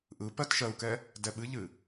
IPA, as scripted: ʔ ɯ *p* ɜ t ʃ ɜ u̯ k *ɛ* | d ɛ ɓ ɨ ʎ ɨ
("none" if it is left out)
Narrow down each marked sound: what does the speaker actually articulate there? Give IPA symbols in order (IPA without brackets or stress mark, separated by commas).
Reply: p, ɛ